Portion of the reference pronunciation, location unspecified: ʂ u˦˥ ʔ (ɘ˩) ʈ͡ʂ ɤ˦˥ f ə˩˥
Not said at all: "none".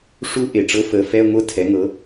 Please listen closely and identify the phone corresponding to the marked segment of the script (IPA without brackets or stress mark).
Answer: e˩